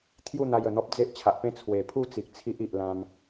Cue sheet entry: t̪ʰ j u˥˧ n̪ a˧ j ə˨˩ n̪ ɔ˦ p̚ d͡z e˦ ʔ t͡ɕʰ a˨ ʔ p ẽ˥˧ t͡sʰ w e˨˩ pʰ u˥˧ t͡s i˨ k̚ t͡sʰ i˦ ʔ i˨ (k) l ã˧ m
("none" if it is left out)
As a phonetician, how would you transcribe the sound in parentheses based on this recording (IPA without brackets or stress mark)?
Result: ʔ